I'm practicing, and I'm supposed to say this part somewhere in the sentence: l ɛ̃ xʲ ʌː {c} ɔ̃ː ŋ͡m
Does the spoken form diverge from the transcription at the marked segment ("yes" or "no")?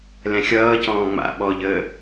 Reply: no